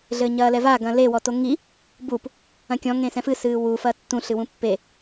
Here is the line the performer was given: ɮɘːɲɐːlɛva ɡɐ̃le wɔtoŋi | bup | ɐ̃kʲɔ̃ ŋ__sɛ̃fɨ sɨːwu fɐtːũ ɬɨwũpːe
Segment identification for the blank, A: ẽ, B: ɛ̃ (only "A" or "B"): A